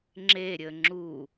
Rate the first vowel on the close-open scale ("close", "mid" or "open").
mid